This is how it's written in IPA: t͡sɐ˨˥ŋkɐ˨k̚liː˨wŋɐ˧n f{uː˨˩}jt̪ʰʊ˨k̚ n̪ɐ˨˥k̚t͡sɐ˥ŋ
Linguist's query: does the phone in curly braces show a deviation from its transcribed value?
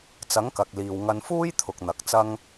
yes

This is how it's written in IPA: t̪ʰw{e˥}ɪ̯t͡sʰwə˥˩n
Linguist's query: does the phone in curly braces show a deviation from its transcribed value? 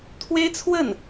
no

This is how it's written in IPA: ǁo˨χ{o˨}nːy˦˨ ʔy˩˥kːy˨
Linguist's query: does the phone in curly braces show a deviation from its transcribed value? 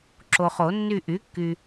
yes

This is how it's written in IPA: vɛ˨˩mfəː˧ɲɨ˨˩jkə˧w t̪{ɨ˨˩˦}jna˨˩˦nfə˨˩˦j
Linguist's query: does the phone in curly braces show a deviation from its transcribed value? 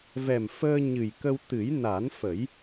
no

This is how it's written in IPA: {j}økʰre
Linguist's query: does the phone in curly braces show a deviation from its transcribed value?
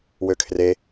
yes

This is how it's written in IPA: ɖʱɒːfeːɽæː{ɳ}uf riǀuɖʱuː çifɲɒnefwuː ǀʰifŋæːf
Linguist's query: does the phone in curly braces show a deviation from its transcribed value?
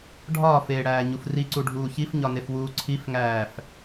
yes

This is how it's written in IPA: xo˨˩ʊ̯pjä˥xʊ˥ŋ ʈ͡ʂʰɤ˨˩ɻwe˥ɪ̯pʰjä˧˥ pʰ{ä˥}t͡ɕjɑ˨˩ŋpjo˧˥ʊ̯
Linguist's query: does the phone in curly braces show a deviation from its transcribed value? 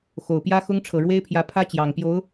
no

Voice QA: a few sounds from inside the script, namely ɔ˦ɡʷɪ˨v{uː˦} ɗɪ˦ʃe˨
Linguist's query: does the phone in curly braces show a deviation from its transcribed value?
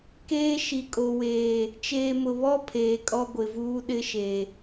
no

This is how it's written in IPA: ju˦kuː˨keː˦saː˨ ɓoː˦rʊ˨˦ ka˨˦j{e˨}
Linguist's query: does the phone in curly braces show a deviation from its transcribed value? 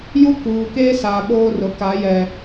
yes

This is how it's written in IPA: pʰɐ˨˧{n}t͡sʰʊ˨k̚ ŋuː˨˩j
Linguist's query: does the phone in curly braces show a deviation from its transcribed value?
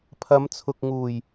yes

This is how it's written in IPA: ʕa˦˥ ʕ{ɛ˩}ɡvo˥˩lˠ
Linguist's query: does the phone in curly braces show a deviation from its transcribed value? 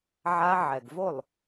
no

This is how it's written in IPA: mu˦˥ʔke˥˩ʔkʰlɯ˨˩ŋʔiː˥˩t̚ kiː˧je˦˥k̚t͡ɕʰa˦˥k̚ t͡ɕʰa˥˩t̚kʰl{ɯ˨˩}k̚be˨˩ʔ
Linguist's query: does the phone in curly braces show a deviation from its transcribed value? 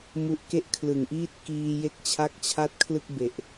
yes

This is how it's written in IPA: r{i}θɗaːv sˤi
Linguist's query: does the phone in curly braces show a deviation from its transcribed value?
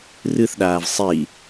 yes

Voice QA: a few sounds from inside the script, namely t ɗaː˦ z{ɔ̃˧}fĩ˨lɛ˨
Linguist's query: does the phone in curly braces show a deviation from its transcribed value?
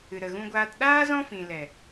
yes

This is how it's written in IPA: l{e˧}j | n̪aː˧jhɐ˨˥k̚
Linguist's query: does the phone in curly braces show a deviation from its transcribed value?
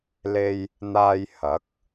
no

